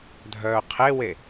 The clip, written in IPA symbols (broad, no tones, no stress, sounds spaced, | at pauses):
dʱ œː qʰ e w e